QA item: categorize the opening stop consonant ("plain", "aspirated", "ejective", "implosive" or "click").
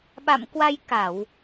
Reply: implosive